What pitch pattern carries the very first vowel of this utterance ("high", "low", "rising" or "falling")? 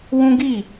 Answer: high